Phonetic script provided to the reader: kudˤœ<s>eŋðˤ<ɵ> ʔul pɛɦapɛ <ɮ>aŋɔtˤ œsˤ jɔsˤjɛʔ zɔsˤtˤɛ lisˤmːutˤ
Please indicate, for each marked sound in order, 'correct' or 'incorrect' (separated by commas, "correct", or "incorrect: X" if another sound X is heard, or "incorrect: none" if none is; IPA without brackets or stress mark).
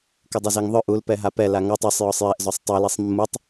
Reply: incorrect: z, incorrect: œ, incorrect: l